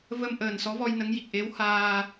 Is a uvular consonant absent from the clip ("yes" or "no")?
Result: yes